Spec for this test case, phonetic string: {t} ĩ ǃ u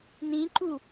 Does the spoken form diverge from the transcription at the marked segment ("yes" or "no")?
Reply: yes